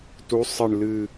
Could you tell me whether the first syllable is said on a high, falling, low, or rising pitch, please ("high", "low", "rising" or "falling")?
rising